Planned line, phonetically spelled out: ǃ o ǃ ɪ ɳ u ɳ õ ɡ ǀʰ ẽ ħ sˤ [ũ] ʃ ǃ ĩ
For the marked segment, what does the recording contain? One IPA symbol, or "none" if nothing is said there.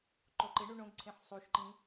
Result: u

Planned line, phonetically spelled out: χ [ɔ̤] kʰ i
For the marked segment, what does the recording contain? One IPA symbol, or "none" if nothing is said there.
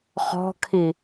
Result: ɔ̤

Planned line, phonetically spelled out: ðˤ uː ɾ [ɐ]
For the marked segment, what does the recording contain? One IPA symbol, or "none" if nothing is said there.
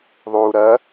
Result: ɐ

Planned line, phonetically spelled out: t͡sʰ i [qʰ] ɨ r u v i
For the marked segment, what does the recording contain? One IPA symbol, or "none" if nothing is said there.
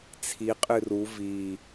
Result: qʼ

